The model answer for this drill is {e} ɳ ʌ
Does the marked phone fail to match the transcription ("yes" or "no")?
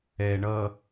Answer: yes